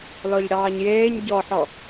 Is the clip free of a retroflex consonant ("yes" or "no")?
no